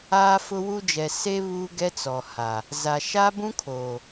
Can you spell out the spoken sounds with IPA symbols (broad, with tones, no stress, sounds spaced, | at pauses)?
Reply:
aː˦ f ʊ˦ w u˦ d͡ʒ ɛ˨ s e˦ β uː˦ ɡ ɛ˦ t͡s ɔ˨ h a˨ | z a˨ ʃ a˦ b ũ˦ kʰ oː˨